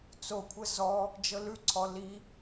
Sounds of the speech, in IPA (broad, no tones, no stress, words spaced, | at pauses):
t͡sokʷʰə zɔ | d͡ʒɤlʉǀʰɔ li